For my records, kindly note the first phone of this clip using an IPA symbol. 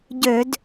ɟ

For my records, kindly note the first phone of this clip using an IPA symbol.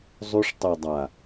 zˤ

